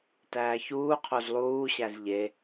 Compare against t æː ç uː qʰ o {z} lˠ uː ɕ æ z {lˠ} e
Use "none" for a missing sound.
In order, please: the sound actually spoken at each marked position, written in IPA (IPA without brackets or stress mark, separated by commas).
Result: z, ʎ